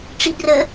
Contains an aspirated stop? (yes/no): no